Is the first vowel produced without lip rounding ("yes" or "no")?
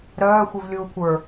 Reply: no